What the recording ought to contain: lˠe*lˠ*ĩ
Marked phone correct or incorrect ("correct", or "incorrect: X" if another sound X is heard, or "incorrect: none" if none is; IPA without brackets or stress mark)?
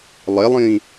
correct